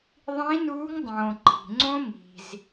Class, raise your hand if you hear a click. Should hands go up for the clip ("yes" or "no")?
yes